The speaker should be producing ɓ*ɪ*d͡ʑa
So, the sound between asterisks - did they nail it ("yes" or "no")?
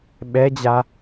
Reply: no